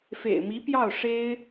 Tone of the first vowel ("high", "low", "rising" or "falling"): low